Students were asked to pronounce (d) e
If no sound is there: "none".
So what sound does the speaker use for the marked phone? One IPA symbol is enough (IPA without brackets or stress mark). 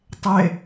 tˤ